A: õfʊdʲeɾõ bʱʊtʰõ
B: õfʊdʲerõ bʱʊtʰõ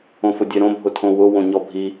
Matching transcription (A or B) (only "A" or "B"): A